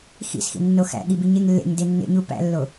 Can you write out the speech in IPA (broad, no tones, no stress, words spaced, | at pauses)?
xḭsxḭnːo xæ̰ɠibiɲeŋ lːḛɲde nːḛɲu pæ̰lːo